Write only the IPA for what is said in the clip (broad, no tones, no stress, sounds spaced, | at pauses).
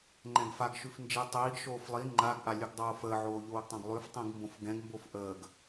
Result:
ŋ͡ǃ ɛ̃ ɡ f a ɡ ʃ ʉ f n d͡ʒ i tˤ iː ɡ ʃ oː f lˠ i ŋ͡ǃ a ɡ ʔ a lʲ ʉ ɡ dˤ oː f əː ʕ oː ʎ oː ɡ tˤ ã ɡ lˠ ʉ f tˤ ĩ ɡ m b õ f ɡ ɛ̃ ɡ m b o f ʔ əː ɡ